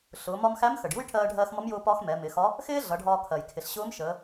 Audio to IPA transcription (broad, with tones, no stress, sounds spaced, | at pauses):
ɬ ʊː˩˧ m ɒ˧ m x æ˧˥ m x ə˩ ɖ j u˥ j ʈʰ ɜː˧ ɖʱ ɜː˧ x m ʌ˧˥ m j ʊː˧ p ɒ˧ x m ɛ˩˧ m ɪ˩˧ x ɒ˧˥ | x ɪː˥ ɮ ʌ˩˧ ɖʱ ɒː˧ kʰ ɜ˩ j kʰ ɪ˩ ɬ ɕ ʊː˧˥ m ʃ əː˩˧